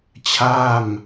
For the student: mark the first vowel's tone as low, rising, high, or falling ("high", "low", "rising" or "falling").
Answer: falling